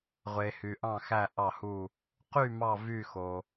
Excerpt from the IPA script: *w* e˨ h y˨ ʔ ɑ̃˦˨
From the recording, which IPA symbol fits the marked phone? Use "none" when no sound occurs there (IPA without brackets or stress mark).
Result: ʁʷ